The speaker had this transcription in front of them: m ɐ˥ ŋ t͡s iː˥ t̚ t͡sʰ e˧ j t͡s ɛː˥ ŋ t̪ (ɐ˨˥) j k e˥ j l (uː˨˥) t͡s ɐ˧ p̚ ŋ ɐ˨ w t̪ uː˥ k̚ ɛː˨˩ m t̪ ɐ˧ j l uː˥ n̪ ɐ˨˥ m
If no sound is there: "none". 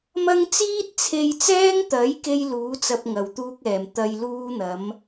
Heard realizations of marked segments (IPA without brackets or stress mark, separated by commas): ɐ˨˥, uː˨˥